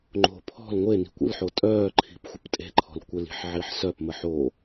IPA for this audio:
ŋ͡ǃ o̤ pʰ ɔ̤ l ŋʷ e n i̤ kʷ ə̰ l ħ o tʼ œː ǃʰ i̤ p xʷ ə p tʼ e̤ ǃʰ ɔ̤ l kʷ ə l i̤ ħ ʕ i ħ s œ p m ə ħ o

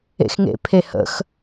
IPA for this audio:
ḛ x ŋ ḛ pʰ e h ə̰ x

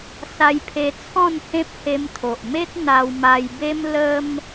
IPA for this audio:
s a˧ j pʰ e˧ t͡sʰ ɔ̃˥˧ n h ẽ˦ p̚ h e˧ m t̪ʰ o˨ ʔ m e˦ t̚ n̪ a˧ w m a˧ j b e˦ m l ə˧ m

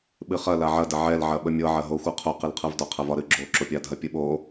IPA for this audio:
ɓ ɨ χ ɐ l a ʕ ɐ d ɐ ʕ ɛ l ʕ ɐ ɓ ə mʲ ɤ ʕ ɐ ɦ o xʷ ɤ qʰ o q ɨ l qʰ ɤ v d ɒ qʰ ɐ v ɒ ɾ ɨ ɡ͡ǁ o ǁ o pʲ a dʱ ɐ pʲ ɨ ɓ o

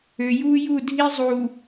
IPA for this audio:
ø˨ j uː˦ j u˦˨ dʱ i˦ zˤ u˨

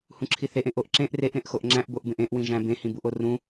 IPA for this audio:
h ũ ǁʰ i θ e ʔ ẽ ʔ o ʔ ǁ ẽ ʔ r e ʔ ɾ ẽ ʔ x o ʔ ŋ͡ǁ æ̃ ʔ b o ʔ b ẽ ʔ ẽ ʔ w ĩ ʒ æ̃ b ẽ h ĩ b u ʔ o r ũ

